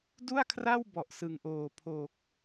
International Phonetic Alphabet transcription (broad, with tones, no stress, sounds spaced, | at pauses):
d u˥˩ a̯ kʰ r a˥˩ w b ɔ˨˩ ʔ s ɯ˨˩ ŋ ʔ oː˨˩ pʰ o˨˩ k̚